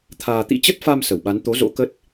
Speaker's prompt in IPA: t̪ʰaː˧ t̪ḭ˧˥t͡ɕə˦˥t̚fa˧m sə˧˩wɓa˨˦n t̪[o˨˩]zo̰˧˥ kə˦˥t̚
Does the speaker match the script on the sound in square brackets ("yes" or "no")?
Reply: no